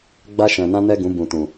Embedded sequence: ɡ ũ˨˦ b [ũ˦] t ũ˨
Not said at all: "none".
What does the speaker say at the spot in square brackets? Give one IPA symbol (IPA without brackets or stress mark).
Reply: ũ˨